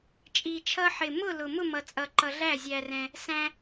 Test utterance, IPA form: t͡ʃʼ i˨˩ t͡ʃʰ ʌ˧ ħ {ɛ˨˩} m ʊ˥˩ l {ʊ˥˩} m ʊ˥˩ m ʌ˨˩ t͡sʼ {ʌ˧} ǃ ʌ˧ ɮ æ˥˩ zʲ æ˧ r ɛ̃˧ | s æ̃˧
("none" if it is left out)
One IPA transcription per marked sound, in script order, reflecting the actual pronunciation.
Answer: ɪ˨˩, ʊ˨˩, ʌ˨˩

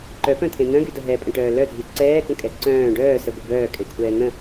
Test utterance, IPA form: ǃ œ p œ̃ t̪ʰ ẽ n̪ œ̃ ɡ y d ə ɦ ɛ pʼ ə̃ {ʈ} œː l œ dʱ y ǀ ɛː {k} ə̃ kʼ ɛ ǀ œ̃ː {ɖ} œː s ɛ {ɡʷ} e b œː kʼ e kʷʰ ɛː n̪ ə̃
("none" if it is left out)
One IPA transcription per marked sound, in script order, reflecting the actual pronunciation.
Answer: ʈ, k, ɖ, ɡʷ

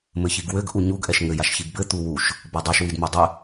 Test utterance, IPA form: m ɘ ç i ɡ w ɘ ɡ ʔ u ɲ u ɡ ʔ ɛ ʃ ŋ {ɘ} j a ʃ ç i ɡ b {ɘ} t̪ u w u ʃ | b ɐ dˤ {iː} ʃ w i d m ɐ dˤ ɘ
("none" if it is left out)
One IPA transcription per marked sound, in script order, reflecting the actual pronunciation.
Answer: ɘ, ɘ, i

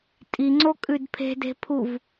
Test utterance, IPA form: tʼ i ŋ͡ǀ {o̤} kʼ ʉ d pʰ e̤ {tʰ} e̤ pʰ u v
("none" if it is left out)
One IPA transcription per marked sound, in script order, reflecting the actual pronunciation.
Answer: o, d

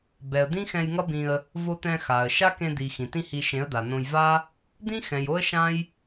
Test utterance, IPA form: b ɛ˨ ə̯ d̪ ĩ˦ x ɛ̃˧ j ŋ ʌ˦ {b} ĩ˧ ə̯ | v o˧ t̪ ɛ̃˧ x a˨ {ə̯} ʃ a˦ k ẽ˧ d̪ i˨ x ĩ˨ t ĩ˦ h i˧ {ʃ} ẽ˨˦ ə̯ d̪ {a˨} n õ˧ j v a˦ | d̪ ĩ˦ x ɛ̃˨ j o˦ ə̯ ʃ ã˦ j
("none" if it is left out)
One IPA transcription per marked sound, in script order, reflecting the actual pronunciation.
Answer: b, ə̯, ʃ, a˨

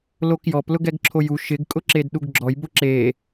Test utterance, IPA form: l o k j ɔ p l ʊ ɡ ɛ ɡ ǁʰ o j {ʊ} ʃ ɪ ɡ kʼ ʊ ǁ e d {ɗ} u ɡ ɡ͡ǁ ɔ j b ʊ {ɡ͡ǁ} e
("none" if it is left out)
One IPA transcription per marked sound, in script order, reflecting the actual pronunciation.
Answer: u, ɗ, ǁ

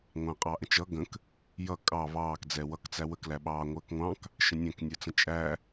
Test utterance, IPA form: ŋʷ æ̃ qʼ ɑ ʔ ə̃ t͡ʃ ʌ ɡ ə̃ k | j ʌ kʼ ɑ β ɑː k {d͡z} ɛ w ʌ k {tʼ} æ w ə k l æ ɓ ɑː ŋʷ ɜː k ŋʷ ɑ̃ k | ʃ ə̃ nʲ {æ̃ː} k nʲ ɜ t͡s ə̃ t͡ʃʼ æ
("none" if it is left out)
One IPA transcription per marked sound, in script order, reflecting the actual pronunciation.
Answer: d͡z, t͡s, æ̃

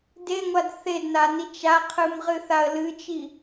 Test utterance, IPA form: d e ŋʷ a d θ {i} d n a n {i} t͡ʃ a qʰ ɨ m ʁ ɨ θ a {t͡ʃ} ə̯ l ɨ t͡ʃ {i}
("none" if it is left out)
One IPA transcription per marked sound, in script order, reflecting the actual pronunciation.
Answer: e, i, none, i

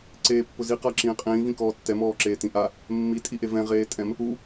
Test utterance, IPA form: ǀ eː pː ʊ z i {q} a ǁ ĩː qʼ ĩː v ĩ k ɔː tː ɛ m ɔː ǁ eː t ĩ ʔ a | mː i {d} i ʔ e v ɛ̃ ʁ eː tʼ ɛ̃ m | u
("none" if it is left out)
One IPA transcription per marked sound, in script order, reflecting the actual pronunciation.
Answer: q, tʼ

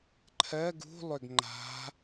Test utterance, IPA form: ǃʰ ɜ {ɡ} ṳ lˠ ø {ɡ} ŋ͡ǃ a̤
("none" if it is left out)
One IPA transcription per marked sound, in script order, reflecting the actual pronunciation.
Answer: ɡ, ɡ

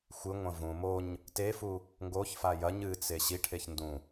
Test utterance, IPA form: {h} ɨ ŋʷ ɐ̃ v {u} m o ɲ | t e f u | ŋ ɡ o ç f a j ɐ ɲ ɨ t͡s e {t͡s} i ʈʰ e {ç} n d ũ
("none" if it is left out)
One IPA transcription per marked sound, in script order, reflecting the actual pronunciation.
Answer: xʷ, ũ, ɕ, ç

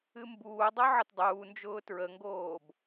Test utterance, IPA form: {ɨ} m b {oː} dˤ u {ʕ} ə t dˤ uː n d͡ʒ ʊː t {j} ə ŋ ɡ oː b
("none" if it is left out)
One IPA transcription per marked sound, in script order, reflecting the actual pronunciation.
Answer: ɨ, uː, ʕ, ɹ

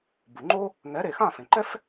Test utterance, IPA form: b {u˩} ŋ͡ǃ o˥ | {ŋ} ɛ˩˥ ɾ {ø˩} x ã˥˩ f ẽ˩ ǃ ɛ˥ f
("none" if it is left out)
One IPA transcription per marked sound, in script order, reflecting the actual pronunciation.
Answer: u˩, ŋ, e˩

